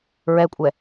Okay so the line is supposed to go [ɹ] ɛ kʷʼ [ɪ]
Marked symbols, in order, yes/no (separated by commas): yes, no